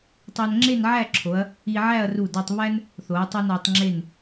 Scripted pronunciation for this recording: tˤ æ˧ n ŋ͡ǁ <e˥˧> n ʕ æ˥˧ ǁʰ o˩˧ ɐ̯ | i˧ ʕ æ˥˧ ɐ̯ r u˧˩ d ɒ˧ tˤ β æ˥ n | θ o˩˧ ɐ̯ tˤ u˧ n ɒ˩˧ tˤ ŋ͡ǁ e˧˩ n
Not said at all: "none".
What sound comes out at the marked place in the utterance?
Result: e˥˧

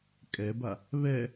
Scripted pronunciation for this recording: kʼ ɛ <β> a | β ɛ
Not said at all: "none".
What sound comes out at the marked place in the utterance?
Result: b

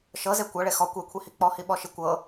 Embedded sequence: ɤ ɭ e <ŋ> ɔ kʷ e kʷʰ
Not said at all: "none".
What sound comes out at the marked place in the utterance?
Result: x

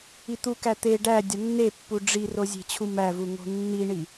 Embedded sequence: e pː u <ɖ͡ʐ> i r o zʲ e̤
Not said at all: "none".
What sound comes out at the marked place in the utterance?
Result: ɖ͡ʐ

